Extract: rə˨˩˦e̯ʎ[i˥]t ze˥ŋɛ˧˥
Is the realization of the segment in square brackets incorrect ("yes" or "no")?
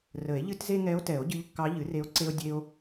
yes